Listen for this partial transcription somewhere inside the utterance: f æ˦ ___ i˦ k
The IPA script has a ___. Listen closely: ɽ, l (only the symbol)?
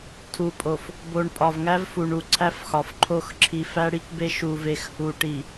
ɽ